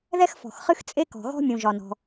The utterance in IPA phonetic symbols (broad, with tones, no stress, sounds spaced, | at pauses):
ð ɛ˥ x f ɔ̤˩ x χ ɨ˥ x t͡sʼ e˥ k ɔ̤˩ ɣ ɔ̤˥ mʲ ũ˩ ʒ ɒ˩ n ɔ̤˩